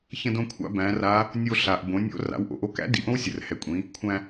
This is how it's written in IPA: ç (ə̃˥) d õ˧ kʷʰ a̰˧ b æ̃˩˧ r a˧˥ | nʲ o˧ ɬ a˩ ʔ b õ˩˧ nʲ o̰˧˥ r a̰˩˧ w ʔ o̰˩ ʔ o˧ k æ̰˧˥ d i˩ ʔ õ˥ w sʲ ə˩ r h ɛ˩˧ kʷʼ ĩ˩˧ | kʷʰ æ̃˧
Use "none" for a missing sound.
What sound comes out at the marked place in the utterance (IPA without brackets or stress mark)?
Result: ə̃˧